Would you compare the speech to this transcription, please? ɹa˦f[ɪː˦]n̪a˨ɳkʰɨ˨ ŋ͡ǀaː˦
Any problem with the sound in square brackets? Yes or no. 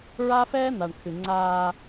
yes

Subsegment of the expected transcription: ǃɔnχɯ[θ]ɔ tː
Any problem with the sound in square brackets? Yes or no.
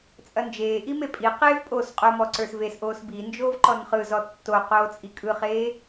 yes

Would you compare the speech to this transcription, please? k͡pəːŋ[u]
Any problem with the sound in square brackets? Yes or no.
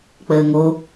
yes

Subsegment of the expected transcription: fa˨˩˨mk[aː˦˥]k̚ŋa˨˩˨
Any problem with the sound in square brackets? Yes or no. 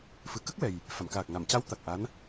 yes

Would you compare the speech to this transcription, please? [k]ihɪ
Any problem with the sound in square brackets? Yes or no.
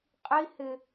yes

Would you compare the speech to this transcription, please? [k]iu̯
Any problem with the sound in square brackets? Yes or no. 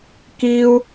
no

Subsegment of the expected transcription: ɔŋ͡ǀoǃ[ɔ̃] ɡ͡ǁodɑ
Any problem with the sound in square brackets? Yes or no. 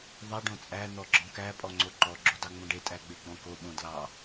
yes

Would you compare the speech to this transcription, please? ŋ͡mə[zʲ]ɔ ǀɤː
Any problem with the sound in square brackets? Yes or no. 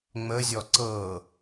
no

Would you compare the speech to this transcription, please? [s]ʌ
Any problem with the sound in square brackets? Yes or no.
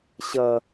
yes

